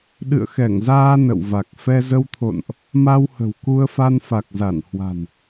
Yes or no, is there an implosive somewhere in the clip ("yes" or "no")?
yes